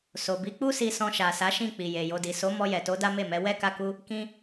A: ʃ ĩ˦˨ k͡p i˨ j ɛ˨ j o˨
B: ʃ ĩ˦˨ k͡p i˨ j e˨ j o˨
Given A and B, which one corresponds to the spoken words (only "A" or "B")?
B